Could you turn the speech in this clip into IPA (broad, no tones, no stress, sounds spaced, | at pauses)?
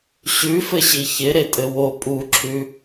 ɕ ʉ f ɘ ɕ i ç ɪ ɾ e tʼ ɘ w o pʼ u ǁʰ ʉ